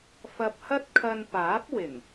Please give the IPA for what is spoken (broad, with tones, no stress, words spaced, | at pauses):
fɐ˧p̚hɐ˥t̚ kʰɐ˧n paː˨˥p̚wɪ˨˩ŋ